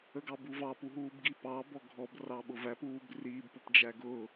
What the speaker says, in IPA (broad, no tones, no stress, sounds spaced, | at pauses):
ə ɡ ɑ b u v ɑ p u ɦ uː b ɡ i p ɑ b ɔ ɡʱ ɔ b r ɑ ɓ ʊ v æ p uː b r iː b p ʊ p d͡ʒ æ ɡ ʊː